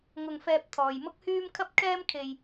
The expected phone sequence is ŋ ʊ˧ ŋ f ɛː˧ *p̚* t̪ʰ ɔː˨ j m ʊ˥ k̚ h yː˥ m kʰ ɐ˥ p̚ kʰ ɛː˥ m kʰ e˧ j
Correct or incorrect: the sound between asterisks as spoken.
correct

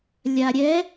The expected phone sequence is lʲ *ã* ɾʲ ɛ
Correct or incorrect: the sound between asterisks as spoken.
incorrect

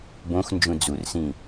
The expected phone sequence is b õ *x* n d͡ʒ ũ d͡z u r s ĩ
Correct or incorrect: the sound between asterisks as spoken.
correct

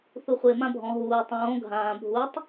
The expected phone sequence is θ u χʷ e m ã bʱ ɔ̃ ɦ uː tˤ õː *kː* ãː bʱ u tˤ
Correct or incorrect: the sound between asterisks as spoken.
incorrect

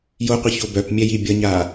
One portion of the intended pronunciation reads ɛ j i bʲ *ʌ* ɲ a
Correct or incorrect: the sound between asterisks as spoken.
correct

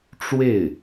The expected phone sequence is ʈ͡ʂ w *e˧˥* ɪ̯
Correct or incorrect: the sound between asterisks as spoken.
incorrect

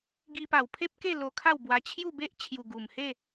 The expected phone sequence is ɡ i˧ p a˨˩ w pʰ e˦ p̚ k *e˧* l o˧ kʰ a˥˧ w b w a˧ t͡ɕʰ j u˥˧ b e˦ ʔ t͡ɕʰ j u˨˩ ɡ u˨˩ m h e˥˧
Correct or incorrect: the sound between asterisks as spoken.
incorrect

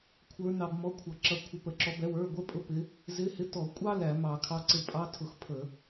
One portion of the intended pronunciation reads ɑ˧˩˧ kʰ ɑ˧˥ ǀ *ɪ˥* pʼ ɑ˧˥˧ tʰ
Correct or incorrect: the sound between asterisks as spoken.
incorrect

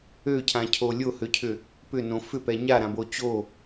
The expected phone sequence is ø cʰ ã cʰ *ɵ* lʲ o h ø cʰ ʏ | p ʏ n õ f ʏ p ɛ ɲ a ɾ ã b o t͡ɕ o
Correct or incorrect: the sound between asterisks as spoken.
incorrect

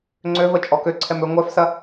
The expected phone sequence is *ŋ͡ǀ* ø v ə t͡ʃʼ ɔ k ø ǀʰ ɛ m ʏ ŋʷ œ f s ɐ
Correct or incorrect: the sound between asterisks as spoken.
correct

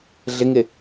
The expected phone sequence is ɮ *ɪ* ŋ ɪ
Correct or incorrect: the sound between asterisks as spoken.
correct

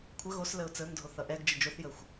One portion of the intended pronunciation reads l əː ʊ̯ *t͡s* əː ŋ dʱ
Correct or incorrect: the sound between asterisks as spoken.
correct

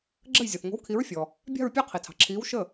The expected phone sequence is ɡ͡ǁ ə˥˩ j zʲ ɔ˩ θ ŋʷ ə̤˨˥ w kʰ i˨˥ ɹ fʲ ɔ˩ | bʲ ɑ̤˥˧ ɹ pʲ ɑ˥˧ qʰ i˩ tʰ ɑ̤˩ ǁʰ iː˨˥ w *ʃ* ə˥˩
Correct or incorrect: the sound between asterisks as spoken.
correct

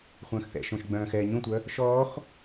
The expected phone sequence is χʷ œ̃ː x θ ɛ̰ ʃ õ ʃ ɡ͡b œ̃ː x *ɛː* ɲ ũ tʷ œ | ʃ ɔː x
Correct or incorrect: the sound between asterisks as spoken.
correct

